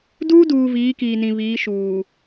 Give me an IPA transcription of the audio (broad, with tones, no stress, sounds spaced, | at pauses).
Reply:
d uː˦ d uː˨ v iː˨˦ k iː˨ n ĩ˨ β iː˨˦ ʃ uː˨